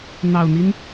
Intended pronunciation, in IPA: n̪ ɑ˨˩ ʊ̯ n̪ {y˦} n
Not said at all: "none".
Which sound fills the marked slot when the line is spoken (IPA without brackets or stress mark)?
i˦